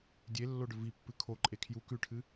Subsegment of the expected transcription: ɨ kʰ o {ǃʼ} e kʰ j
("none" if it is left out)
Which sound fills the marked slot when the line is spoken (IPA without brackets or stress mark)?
ǃʼ